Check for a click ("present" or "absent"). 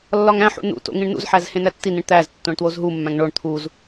absent